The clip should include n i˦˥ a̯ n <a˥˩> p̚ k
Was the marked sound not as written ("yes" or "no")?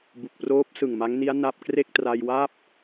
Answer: no